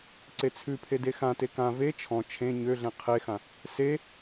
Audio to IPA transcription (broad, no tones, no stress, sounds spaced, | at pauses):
ǀ e t͡sʰ ʉ pʰ e d e x ã t e k ã v e t͡ʃʰ ɔ̃ t͡ʃʰ ẽ ɲ ø ɮ ẽ qʰ e x ã | s e